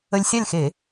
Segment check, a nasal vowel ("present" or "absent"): absent